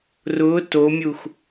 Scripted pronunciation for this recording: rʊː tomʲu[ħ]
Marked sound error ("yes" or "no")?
yes